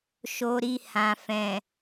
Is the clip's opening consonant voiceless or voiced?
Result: voiceless